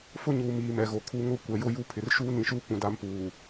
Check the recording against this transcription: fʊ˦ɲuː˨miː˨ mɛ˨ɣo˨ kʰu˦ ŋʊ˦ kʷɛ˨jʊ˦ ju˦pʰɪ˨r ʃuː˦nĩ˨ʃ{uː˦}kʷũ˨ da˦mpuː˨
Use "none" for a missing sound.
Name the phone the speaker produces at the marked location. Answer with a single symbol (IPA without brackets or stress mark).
uː˦